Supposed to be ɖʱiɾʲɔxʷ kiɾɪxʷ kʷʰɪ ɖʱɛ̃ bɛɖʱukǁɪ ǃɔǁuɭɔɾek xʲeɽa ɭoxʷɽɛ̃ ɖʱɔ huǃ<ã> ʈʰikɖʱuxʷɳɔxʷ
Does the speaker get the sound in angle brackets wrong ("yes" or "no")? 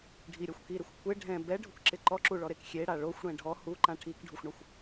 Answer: no